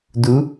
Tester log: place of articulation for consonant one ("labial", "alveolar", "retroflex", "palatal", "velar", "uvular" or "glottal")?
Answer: alveolar